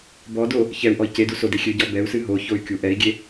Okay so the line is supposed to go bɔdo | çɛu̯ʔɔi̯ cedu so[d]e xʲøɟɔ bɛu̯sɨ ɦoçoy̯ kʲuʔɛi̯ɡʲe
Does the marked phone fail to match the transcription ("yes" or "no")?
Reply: no